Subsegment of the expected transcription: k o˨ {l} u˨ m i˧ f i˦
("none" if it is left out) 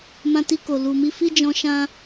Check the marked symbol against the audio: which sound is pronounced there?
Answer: l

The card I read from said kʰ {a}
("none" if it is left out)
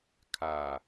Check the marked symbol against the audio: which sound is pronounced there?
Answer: a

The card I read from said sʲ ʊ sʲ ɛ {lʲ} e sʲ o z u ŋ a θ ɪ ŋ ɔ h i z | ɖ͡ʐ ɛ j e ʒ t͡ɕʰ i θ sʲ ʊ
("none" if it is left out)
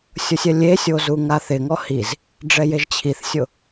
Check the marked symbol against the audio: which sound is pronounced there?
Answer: lʲ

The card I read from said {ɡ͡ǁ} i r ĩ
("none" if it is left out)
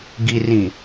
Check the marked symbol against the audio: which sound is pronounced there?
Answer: ɡ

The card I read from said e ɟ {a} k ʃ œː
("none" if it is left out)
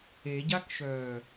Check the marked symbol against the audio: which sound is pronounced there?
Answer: a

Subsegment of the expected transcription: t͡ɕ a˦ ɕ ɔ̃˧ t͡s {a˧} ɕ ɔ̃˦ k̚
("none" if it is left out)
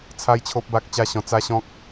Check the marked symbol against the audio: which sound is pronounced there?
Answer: a˦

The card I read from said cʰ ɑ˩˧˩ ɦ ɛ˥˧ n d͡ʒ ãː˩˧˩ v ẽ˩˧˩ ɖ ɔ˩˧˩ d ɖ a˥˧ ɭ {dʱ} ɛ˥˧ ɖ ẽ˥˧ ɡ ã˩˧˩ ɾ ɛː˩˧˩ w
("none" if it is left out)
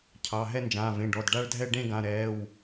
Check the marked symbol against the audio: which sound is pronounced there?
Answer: dʱ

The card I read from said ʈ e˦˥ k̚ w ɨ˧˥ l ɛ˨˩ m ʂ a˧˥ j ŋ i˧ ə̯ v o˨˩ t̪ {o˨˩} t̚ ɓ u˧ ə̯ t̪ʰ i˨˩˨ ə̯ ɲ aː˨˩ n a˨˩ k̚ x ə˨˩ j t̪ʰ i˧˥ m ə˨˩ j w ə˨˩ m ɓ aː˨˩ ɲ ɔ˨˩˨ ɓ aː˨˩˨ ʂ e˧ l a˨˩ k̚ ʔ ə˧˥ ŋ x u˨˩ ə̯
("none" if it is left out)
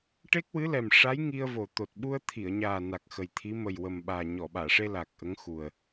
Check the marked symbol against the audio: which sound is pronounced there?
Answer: o˨˩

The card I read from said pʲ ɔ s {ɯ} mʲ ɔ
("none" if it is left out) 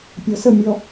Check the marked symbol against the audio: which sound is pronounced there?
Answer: ə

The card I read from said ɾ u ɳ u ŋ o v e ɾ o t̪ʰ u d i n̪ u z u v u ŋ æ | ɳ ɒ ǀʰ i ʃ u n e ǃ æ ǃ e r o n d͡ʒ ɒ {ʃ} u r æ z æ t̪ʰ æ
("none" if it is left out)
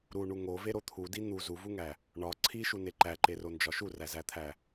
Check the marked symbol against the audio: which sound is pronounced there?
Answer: ʃ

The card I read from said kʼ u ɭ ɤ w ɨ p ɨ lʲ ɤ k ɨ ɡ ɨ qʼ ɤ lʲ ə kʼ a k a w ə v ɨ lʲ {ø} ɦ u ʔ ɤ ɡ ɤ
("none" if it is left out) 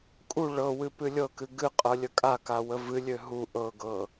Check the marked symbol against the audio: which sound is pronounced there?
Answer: ø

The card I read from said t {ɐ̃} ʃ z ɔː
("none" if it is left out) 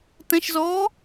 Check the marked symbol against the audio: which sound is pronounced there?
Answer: ɐ̃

